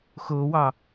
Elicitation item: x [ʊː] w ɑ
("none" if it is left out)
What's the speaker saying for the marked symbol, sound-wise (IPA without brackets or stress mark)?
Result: ʊː